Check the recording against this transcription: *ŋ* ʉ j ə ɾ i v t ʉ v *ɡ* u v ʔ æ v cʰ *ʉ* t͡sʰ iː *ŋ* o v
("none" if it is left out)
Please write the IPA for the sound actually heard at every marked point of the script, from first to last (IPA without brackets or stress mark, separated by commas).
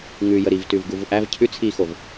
ŋ, ɡ, ʉ, x